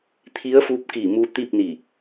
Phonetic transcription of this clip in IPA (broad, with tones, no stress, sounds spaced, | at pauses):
t̪ʰ i˧˥ ə̯ f uː˧˥ p̚ k iː˧˩ m u˧ t̪ i˥˨ p̚ n i˧˩